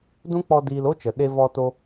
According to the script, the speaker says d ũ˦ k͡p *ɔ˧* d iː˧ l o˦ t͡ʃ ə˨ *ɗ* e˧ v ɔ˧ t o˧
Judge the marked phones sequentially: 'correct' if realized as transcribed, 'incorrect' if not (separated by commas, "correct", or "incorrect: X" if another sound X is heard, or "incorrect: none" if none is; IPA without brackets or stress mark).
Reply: correct, correct